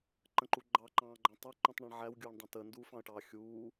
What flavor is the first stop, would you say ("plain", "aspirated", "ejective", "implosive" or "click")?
click